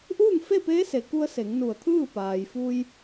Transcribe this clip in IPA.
ʔ uː˥˨ ŋ f e˥˨ p eː˧˥ s e˩ k u˧ ə̯ s e˩˧ ŋ n u˧˩ ə̯ t̪ʰ ɯː˥˨ p aː˩ j f u˧ j

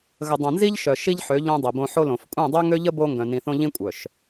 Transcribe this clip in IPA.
ɣ ə˨ dˤ œ̃˨ n z i˦ ʎ ʃ œ˨ ʃ i˦ ʎ ħ ø˨˦ ʎ õ˦ dˤ i˨ b õ˦ ħ o˦ l õ˨ f kʷʼ ɛ̃˦˨ dˤ ø˦ ŋ ø˦ ʎ ə˦ b o˦ ŋ ɡ œ̃˨ n ĩ˨ θ õ˦ ʎ ĩ˦ kʷʼ œ˨ ʃ

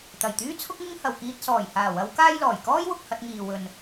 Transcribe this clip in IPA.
t̪ ɐ˨˩ j t̪ yː˥ t͡sʰ ʊ˥ k̚ ŋ ɪ˥ ŋ h ɐ˨ w k iː˧ t̚ s ɔː˨˩ j h aː˨˩ w ɐ˨˧ w k aː˥ j l ɔː˨˩ j k ɔː˥ j w ʊ˨ k̚ h ɐ˧ t̚ ŋ iː˨ w ɵ˨ n

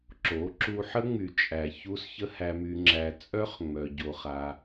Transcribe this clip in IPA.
ǁ o˨˦ ǁ u˧ ħ ə˦ ŋ͡m y˨ t͡ʃʼ æ˨ ç u˧ s ç ə˦ h æ˧ m y˧ ŋ͡ǁ æ˧ t͡sʼ œ˦ χ ŋ͡m œ˧ ɟ o˧ χ a˧

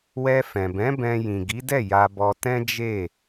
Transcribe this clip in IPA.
w ɛ˧ f ɛ̃˨ b ɛ̃˨˦ b ɛ̃˧ j ĩ˨ ɡ i˨˦ d ɛ˦˨ j a˧ b ɔ˧ t ɛ̃˦ d͡ʒ e˦˨

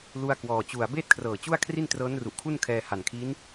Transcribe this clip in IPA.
l u˧ a̯ k w ɔː˨˩ t͡ɕ u˨˩ a̯ b eː˥˩ t̚ kʰ r ɤː˨˩ t͡ɕ u˥˩ a̯ kʰ r i˥˩ n t r ɤː˦˥ n r u˨˩ ʔ kʰ u˥˩ n kʰ ɛː˧ h a˨˩ n kʰ i˦˥ n

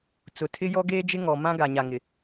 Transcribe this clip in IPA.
t͡s ʊ˨ tʰ ɪ˦ j ɔ˦ ɡ eː˦ d͡ʒ ɪ˦ ŋ ɔ˨ m ã˦ ɡ a˨ ɲ a˨ ŋ ɪ˨

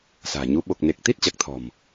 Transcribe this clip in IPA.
s a̤ː˨˩ ɲ u˨˦ ɓ o˨˩ k̚ n e˨˩ k̚ t̪ i˦˥ t̚ t͡ɕ a˨˩ k̚ t̪ʰ ɔ̤˨˩ m

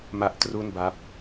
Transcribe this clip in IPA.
m a˦˥ ʔ t r u˥˩ n b a˦˥ p̚

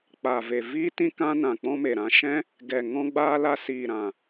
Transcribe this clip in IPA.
k͡p a˨ v e˨ v iː˦ t ĩ˦ k ã˦ n ã˨ k͡p ɔ̃˦ m e˨ ɾ ã˧ ʃ ɛ̃˦ | ɡ ɛ˨ ŋ ɔ̃˧ ɡ͡b aː˧ l a˧ s iː˨ ɾ ã˨

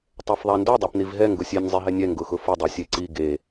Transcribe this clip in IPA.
tˤ ɛ f ðˤ a n d o dˤ a p n i v ɦ ɛ ŋ ɡ ʊ sʲ e nʲ zˤ e ɦ ɛ nʲ ɛ ŋ ɡ ʊ x ʊ f ʊ dˤ ɛ sʲ e ǀ i ɡ e

